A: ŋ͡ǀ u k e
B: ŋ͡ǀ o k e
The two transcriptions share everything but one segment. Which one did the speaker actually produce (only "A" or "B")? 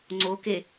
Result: B